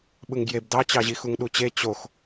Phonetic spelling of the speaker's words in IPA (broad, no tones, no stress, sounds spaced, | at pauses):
ɓ ɯ ŋ ɡ j e b d ɑ t͡ɕ ɑ ʑ i x u ŋ ɗ u t͡ɕ e t͡ɕ o x